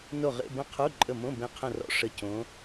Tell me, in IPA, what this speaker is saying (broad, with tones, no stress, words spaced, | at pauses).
no˦˨ʁḛ˧˥˧bə̃˧˥˧qʰu˧˥˧ ǃʼə˦˨mõ˧˥˧ bẽ˧˥qʰə̃˦˨rɔ̰˧˥ ʂə˧˥cõ˧˥